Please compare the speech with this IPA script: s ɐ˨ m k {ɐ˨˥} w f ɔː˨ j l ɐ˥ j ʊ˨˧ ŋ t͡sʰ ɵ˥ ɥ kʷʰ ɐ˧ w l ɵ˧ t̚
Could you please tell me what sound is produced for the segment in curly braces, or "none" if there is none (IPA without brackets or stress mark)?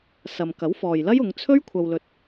ɐ˨˥